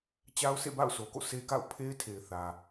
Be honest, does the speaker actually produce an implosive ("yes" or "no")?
no